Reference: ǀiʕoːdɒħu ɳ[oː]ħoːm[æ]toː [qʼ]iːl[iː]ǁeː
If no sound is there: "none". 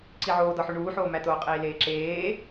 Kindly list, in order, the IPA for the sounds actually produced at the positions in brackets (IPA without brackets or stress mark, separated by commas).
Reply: uː, æ, qʼ, eː